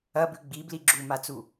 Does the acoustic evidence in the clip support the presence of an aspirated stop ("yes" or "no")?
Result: no